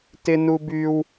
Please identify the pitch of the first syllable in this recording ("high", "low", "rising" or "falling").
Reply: high